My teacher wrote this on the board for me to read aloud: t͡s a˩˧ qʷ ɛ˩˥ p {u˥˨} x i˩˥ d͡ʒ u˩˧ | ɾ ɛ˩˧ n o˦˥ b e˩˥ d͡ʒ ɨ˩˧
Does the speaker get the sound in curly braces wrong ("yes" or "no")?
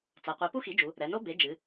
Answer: yes